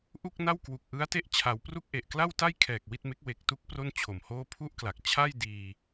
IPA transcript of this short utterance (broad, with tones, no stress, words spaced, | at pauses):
ʔu˥˩k̚na˥˩w kwu˨˩k̚ʔɯ˦˥a̯te˦˥ʔ t͡ɕʰa˩˦wpru˥˩k̚ʔe˨˩ʔ kla˥˩wta˥˩jkʰɛː˨˩k̚ wi˥˩t̚me˦˥k̚ we˨˩k̚tu˦˥k̚ pro˥˩nt͡ɕʰo˨˩mhoː˥˩ pʰu˥˩ʔkla˨˩k̚ t͡ɕʰa˥˩jdiː˧